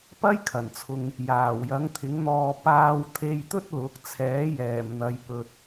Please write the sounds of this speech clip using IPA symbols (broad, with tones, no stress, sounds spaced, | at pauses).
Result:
p ɐ˥ j kʰ ɐ˨˩ n t͡sʰ ʊ˨ ŋ | j aː˨˩ w j ɐ˨˥ ŋ t̪ʰ ɪ˨˥ ŋ n̪ ɔː˧ p aː˧ w t̪ʰ e˧ j t̪ ɵ˥ t̚ l ʊ˨˥ k̚ t͡sʰ ɛː˨˥ j ɛː˨˩ m n̪ ɐ˨ j p ɵ˨ t̚